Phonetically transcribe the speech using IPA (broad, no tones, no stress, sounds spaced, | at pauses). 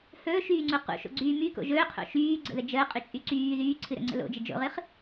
h ɵː ʃ yː ŋ͡ǀ u q ṵ ʃ o̰ ɡ͡ǀ yː m y k o̰ ʒ ɵː qʰ o̰ ʃ yː ɡ͡ǀ ə̰ ð ə d͡ʒ əː qʼ y t͡ʃʼ y ǀ yː ð yː ǀʰ ɨ ɾ ə̰ ŋ͡ǀ ə̰ l o̰ d͡ʒ ə d͡ʒ o̰ ʁ ɨ χ